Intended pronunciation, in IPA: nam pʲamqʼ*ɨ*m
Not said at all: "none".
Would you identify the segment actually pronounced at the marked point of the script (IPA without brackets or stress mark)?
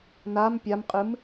ɨ